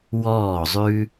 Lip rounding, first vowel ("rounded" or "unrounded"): rounded